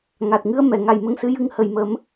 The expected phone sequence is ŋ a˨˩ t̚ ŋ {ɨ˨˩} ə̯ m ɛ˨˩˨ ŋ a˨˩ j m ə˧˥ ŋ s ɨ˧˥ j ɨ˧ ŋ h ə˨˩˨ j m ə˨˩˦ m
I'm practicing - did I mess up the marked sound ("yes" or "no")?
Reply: yes